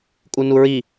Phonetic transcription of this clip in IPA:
kʼ u n u ɹ i

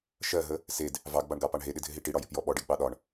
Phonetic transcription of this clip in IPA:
ʃ ɜ ɦ ə | s e d | v ɑ ɡ b ɑ ɳ ɡ ɑ p ɑ ɳ ɦ e ɗ ɪ dʱ ɪ ɦ i ʈ i ɽ ɒ j ɪ p j ɔ ɓ ɔ ɖ e ɡ ɓ ɑ ɗ ɒ ɳ

